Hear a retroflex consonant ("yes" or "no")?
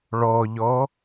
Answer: yes